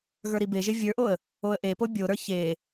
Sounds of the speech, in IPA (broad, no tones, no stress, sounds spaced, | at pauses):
ɣ ə˞ ɾ i b e ʒ e vʲ ə˞ ʔ o ə̯ | o ə̯ ʔ e p o bʲ o ɾ ə˞ ç e